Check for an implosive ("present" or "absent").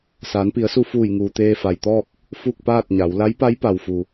absent